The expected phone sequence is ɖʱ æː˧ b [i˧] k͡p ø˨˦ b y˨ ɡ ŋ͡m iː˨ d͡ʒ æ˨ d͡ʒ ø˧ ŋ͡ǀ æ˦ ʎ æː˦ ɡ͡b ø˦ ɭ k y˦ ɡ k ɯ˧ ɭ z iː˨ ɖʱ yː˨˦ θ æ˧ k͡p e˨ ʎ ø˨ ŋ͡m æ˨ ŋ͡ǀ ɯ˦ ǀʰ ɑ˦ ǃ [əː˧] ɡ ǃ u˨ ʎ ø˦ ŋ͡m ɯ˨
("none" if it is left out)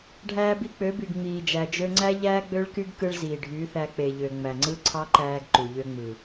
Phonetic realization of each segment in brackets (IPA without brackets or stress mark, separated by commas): i˧, æː˧